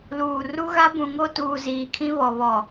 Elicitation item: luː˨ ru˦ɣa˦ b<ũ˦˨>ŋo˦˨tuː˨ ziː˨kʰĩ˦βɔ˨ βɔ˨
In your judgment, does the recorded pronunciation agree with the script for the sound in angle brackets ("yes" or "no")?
no